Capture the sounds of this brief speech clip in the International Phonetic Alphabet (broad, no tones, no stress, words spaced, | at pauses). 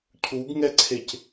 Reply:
cʰuɡŋɛǀʰec